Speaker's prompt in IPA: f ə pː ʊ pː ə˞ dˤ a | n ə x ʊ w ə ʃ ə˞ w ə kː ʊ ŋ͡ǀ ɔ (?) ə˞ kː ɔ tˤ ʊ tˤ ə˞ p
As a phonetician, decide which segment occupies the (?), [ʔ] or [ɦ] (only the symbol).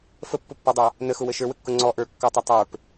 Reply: ʔ